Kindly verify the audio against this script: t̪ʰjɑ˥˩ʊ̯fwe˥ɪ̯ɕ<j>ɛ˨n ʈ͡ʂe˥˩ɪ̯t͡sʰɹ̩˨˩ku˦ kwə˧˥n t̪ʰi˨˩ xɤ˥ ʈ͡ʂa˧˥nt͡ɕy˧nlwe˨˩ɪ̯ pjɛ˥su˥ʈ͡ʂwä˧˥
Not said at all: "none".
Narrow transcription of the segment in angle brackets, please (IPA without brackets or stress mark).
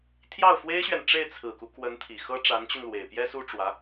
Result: ɥ